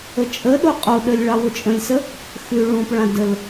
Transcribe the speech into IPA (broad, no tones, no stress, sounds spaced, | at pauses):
ə t͡ʃʼ ə ɗ o qʼ o ɗ ə lʲ ɭ ɑ w ʊ t͡ʃʼ ə̃ lʲ s ə | x ʉ ɭ ũ p ɭ ã d ə l